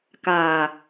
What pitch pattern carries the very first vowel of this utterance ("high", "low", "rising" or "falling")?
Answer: low